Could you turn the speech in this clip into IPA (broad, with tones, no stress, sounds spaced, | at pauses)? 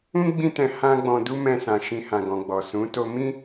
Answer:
ũ˦ ɡ͡b ĩ˦ t ɛ̃˧ h ã˦ ɡ͡b ɔ̃˧ d u˦ m ɛ̃˧ s ã˨ ʃ ĩ˧ h ã˨ ɡ ɔ̃˨ ɡ͡b ɔ˨ s ũ˨˦ t o˧ m ĩ˦